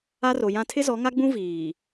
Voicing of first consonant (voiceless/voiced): voiced